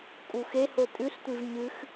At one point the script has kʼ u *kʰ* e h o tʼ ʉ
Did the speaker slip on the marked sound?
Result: yes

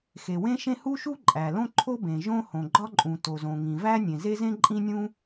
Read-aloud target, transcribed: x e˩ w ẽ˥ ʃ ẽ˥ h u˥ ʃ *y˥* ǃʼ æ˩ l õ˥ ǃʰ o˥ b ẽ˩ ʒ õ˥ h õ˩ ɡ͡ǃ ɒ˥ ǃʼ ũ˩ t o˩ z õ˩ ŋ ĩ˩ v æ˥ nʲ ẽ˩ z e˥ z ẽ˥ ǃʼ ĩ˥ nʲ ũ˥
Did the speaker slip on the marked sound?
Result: yes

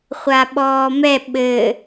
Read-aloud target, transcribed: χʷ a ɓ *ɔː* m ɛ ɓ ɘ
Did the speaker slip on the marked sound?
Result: no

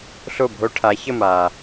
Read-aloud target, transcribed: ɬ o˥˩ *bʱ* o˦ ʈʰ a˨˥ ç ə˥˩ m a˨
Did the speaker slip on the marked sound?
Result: no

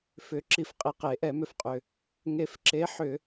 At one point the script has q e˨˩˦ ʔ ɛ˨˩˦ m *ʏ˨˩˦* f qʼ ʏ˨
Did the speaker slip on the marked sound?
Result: yes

